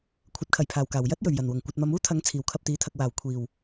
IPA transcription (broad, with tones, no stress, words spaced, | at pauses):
kʷʰɐ˨˥t̚kʰɐ˨˩jpʰaː˨˩wkaː˨˩w jɐ˥t̚ jɵ˨˩ɥjɐ˨˩nwʊ˨˩ŋ kʷɐ˨t̚mɐ˨˧muː˥t̪ʰɐ˨˧ŋ t͡sʰiː˨˩wkʰɐ˧p̚t̪iː˨˥t̪ʰɐ˨k̚ waː˨˩w kʷʰiː˨˩w